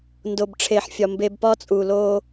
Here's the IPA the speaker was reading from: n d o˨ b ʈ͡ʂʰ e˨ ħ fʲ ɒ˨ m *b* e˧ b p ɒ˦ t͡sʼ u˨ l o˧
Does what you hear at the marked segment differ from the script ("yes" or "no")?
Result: no